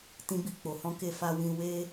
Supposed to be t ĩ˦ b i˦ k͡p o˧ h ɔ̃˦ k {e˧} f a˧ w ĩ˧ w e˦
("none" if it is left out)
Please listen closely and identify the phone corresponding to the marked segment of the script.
e˧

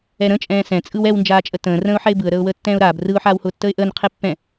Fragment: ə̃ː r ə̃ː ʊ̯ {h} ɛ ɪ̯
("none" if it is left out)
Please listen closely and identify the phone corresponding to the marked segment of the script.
ħ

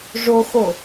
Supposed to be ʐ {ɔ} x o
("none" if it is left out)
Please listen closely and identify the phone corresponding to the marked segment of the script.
o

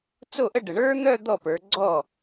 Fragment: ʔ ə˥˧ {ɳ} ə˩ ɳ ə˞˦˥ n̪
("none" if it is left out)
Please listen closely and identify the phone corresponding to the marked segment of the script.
ɖ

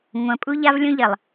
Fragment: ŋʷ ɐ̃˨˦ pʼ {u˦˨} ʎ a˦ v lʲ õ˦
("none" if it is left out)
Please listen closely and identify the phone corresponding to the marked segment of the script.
u˦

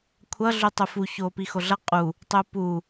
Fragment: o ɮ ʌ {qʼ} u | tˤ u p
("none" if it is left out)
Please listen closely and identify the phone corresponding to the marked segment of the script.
qʼ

